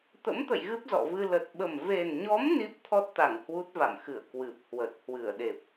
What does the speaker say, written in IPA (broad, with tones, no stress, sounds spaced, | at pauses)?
t̪ ə̰˧˥ m t̪ ə̰˧˨ j ɣ ɨ˦˥ p̚ z ɔ̰˧˨ v ɨ˧ l ə˨˩ t̚ ɓ ə˨˩ m v e˨˩ n ɲ ɔ˨˦ m n i˦˥ p̚ t̪ʰ ɔ˦˥ t̚ t̪ a˧˩ ŋ h w u˦˥ t̚ v a̰˧˨ m x ɨ˧˩ ə̯ k w ɨ˨˩ p̚ h w ə˨˩ t̚ h w ɨ˧˩ ə̯ ɗ e˨˩ p̚